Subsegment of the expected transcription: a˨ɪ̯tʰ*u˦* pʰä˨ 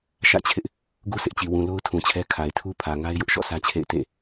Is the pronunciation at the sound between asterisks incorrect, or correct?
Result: correct